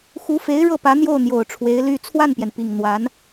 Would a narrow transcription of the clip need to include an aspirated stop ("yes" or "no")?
yes